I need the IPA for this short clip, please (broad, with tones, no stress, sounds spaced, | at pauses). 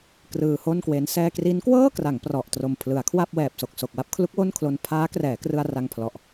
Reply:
k r ɯː˧ h o˥˩ n k w e˦˥ n s ɛː˧ k r i˦˥ n k w ɤː˥˩ k r a˩˦ ŋ p r ɔ˨˩ ʔ t r o˨˩ m pʰ l ɯ˩˦ a̯ kʰ w a˥˩ p̚ w ɛː˨˩ p̚ s o˨˩ k̚ s o˨˩ k̚ w a˥˩ p̚ kʰ l u˦˥ k̚ w o˥˩ n kʰ l o˧ n pʰ aː˦˥ k r ɛː˩˦ k r ɯ˧ a̯ r a˧ ŋ pʰ l ɔ˨˩ ʔ